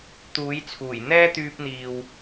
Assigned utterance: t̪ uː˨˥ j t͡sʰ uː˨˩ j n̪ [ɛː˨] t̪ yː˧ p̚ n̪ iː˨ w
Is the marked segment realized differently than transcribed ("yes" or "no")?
yes